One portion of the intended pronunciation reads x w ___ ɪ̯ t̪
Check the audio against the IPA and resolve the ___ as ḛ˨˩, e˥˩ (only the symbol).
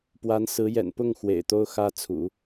ḛ˨˩